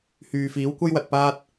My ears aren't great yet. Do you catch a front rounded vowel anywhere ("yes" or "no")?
yes